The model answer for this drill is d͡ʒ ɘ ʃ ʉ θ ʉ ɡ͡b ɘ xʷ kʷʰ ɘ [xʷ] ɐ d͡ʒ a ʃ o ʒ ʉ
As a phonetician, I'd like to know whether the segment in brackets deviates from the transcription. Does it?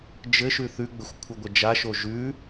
yes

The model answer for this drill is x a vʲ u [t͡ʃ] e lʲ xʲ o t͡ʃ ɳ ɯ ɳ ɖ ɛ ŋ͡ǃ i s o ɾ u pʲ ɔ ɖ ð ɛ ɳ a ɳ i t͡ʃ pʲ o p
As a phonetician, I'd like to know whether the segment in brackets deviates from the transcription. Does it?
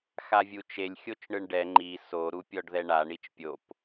no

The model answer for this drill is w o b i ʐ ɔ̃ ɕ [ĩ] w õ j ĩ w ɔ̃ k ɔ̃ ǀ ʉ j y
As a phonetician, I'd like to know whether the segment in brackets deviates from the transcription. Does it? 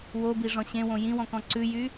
yes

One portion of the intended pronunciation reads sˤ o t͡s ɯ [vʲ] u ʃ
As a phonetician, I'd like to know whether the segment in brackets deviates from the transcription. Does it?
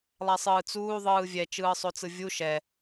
no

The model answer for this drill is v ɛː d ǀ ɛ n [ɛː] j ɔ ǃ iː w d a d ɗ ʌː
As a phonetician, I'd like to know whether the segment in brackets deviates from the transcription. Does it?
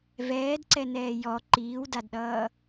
no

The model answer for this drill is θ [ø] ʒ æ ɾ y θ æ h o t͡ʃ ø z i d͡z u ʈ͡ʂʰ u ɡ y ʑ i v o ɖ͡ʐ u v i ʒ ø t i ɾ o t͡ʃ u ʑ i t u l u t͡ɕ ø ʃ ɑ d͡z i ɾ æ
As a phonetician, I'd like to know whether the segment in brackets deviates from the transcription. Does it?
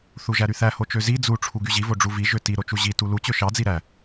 yes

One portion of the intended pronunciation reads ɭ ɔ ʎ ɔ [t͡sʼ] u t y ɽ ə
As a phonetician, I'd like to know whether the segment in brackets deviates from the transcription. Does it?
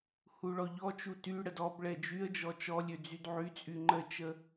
yes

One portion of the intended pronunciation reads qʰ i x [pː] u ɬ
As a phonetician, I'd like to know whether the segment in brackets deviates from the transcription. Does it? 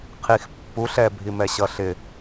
no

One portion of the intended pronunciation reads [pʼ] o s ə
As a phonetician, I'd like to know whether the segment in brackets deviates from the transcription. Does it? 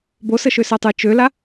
yes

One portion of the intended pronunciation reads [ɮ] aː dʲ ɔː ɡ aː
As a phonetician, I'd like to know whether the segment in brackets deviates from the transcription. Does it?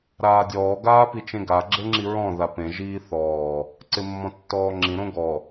yes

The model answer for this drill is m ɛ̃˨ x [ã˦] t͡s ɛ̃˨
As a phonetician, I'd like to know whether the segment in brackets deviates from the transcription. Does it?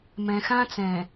no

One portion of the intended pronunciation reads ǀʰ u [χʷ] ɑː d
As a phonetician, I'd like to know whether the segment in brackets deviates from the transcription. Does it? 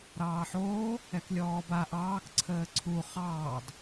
yes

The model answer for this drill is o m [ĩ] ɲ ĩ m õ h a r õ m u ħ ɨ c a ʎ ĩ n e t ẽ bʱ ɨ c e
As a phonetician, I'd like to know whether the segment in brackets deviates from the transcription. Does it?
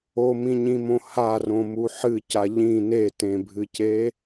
no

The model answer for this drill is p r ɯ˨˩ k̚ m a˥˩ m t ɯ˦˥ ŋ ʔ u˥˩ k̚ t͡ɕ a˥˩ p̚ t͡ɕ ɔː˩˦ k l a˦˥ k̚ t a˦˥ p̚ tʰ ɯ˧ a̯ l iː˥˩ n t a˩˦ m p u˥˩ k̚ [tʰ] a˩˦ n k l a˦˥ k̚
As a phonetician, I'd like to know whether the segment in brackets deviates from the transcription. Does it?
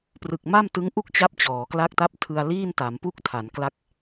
no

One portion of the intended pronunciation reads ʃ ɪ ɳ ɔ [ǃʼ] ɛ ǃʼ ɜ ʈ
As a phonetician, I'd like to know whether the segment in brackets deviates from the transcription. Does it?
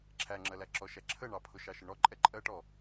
no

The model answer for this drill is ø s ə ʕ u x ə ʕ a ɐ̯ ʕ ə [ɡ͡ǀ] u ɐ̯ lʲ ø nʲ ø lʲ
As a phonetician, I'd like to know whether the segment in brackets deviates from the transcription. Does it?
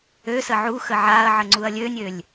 yes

